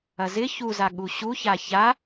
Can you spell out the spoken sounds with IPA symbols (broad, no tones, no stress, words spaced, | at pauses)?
ɐzɪ çuzaɠu ɕuça ça